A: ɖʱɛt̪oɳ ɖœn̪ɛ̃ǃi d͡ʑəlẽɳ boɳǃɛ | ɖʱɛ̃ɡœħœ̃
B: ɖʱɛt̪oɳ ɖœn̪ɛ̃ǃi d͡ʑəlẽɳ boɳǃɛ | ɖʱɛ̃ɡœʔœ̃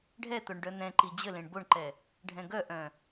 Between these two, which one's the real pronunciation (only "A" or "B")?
B